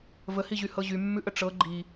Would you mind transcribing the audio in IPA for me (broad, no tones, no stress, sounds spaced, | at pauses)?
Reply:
v ə h i ʑ y h ɤ ʑ y mː ʉ ʔ ə ʈ͡ʂ ɤ ɡ͡ǃ i